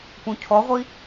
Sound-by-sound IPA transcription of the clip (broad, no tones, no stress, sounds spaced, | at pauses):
p ũ cʰ ɔ ʁʷ i